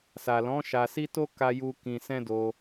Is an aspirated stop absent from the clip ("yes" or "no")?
yes